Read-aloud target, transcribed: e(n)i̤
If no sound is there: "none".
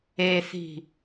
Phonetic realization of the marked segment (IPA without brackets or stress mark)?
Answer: θ